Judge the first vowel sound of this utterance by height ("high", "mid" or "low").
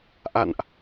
low